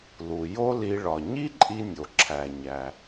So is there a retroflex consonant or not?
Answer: yes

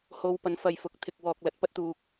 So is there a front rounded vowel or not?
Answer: no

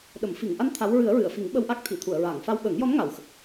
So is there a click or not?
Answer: no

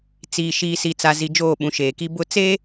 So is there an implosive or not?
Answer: yes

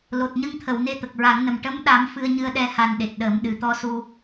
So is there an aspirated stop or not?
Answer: yes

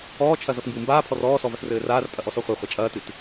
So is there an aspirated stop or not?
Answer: yes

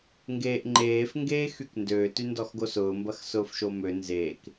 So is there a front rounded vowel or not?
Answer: yes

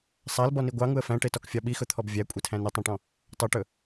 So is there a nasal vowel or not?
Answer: yes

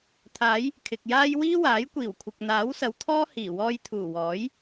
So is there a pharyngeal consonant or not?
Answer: no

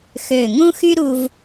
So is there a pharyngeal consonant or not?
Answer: no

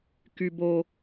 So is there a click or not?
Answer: no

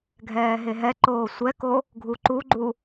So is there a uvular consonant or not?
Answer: no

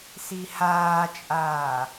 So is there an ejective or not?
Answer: yes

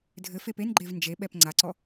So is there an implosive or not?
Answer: yes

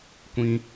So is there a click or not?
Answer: no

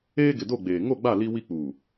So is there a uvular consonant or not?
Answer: no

